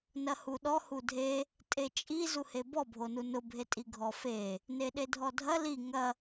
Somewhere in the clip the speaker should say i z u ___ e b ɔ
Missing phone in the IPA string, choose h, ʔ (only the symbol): h